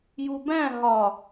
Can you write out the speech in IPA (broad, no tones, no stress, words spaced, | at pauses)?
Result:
jubæ̃ ɦɒ